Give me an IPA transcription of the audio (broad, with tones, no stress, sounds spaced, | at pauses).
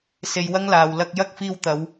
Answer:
s e˧ j w ɐ˥ ŋ l aː˨ w l ɐ˧ k̚ j ɐ˥ k̚ f iː˧ w t̪ ɐ˨˧ w